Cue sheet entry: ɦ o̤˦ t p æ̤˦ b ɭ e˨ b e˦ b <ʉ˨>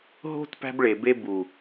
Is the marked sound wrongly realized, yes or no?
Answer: yes